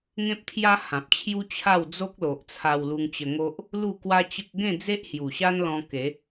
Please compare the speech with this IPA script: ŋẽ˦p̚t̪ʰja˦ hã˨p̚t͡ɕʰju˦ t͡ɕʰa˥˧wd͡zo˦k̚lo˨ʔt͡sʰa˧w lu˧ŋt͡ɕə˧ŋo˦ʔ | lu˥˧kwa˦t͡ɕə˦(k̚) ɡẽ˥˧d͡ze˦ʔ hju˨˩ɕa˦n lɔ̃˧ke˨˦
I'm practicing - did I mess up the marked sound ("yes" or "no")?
no